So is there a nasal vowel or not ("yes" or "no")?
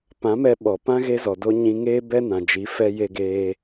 yes